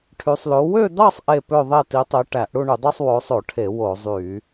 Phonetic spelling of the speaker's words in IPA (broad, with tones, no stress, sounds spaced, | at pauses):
ʈʰ y˨˦ sˤ l o˨˦ w ø˥˧ d̪ ɑ˥˧ sˤ ʔ e˥˧ p ø˥˧ ðˤ e˥˧ t i˨˦ tˤ e˨˦ ʈ æ˧˩˧ ʔ ɽ u˥˧ ɳ y˧˩˧ dˤ o˥˧ sˤ w o˨˦ sˤ o˧˩˧ ʈʰ e˧˩˧ w o˧˩˧ zˤ y˧˩˧